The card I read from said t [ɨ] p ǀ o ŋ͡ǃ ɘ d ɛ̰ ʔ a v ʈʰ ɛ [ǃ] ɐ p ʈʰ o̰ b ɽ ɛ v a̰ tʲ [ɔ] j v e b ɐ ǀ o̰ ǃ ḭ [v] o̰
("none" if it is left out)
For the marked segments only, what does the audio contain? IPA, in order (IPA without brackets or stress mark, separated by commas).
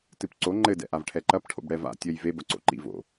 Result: ɨ, ǃ, ɔ, v